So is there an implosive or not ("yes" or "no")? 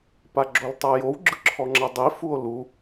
no